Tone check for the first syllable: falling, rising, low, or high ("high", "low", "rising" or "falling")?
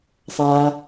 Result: low